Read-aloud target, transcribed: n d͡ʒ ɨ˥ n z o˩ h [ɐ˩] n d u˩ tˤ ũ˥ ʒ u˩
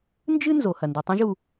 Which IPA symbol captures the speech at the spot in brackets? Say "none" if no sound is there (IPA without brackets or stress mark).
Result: ɐ˩